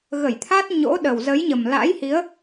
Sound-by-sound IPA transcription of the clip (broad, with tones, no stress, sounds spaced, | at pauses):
ɣ ə˧˩ j t̪ʰ a˦˥ t̚ ɲ o̰˧˥ ɗ ə˨˩ w z ə˨˦ j ɲ ə˨˩ m l a̰˧˥ j h i˨˦ ə̯